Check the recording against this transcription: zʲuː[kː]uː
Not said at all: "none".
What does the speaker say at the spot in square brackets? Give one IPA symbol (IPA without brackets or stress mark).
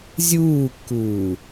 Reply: kː